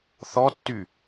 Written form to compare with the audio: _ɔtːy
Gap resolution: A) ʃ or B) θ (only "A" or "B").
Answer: B